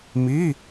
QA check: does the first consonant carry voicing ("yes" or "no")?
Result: yes